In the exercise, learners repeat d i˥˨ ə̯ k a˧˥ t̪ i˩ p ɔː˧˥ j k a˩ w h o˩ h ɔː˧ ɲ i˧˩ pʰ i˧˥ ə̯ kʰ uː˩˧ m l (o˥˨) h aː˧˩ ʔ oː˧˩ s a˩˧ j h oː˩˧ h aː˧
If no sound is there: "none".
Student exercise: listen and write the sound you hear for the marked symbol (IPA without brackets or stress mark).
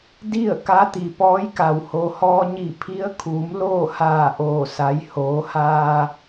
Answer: oː˥˨